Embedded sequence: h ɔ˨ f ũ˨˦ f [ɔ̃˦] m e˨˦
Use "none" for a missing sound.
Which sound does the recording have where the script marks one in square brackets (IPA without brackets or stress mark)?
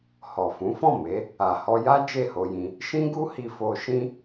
ɔ̃˦˨